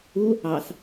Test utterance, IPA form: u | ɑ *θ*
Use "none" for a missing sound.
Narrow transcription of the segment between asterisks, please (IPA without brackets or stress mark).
θ